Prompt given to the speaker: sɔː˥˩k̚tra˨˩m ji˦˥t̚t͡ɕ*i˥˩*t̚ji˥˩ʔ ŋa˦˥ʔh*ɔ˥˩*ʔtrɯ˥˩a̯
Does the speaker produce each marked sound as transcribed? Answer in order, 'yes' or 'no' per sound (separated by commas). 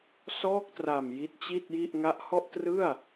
yes, yes